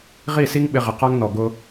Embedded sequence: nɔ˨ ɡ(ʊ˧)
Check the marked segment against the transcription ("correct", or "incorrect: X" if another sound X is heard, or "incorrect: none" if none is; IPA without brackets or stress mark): correct